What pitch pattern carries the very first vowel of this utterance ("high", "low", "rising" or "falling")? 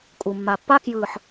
low